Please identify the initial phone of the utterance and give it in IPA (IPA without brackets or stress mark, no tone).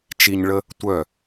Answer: t͡ʃ